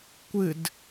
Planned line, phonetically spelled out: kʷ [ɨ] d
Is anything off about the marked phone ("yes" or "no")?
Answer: no